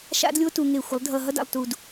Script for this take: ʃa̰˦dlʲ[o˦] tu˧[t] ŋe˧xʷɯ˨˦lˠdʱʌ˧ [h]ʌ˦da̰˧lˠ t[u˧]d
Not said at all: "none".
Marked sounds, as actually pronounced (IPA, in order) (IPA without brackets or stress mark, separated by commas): o˦, none, ɦ, u˧